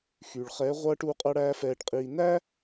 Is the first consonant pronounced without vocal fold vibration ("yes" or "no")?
yes